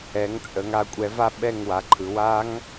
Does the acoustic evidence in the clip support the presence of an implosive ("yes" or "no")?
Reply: yes